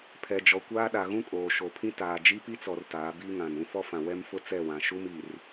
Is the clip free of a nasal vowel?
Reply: no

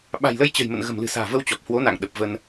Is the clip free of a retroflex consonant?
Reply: yes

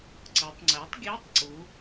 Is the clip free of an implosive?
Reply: yes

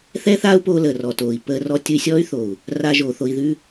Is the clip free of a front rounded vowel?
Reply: no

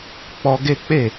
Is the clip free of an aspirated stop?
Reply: yes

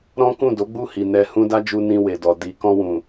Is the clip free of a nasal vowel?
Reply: no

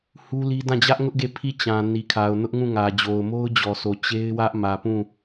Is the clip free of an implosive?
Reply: yes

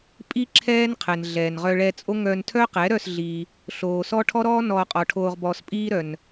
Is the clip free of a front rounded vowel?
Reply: no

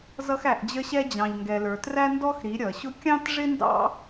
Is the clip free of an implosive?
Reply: yes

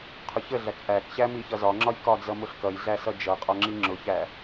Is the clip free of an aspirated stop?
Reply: no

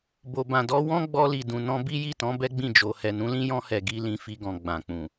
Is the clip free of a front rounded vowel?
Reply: yes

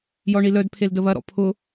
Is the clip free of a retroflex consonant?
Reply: no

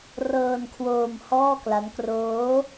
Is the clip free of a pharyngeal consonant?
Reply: yes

